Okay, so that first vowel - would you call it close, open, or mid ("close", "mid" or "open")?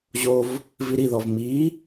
mid